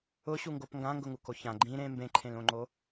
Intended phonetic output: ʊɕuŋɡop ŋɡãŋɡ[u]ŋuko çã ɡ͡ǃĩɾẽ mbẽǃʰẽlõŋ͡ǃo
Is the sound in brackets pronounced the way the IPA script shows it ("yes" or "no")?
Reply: no